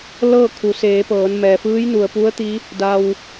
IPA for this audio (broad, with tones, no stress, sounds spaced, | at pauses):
l ɤː˥˨ kʰ u˩˧ s eː˩˧ p ɤː˩˧ n m ɛː˩ f ɯː˧˥ j n u˩ ə̯ p u˧˥ ə̯ t̪ i˧˥ | d a˧ w